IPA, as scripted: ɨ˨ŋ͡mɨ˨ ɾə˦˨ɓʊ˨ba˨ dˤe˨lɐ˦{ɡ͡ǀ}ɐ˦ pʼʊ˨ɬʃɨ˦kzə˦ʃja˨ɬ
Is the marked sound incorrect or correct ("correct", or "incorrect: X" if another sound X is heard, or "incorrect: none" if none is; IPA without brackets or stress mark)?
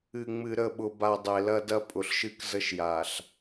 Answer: incorrect: d